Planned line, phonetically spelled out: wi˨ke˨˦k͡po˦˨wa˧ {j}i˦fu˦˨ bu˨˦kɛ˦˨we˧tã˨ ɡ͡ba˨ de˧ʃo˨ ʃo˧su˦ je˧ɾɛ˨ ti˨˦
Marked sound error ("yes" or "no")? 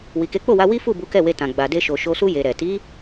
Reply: yes